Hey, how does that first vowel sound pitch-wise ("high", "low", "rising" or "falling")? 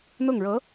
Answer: falling